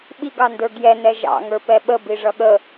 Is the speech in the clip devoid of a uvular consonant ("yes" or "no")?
yes